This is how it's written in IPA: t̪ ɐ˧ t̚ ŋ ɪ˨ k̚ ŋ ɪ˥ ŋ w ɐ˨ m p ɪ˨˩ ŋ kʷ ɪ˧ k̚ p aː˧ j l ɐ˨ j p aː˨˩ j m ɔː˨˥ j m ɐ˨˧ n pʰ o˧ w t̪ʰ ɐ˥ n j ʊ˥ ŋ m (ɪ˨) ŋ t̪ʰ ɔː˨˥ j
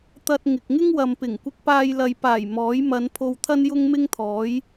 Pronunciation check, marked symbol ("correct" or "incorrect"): incorrect